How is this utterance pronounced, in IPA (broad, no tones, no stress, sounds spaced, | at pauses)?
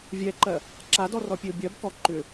vʲ ɛ ǃ ɜ | ǁ a d ɔ r ɔ pʲ e ʊ̯ bʲ ɜ b k ɔ ǃ ʏ